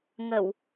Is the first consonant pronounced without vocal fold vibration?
no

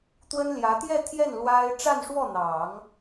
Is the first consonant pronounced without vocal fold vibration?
yes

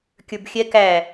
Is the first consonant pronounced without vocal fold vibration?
yes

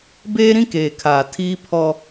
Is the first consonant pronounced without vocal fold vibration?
no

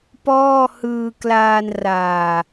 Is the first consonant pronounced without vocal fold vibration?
yes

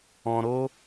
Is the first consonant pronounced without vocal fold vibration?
no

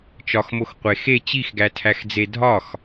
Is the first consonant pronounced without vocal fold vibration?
yes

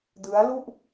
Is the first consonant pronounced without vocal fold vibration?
no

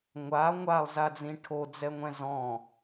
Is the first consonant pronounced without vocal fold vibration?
no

